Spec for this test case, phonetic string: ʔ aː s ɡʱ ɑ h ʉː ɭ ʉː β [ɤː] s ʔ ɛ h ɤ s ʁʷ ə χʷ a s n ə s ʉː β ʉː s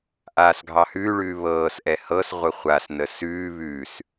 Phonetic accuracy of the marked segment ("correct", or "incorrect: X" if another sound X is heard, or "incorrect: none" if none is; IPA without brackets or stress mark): correct